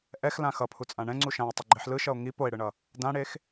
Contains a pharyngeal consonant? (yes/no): yes